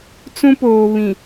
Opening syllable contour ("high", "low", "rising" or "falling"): high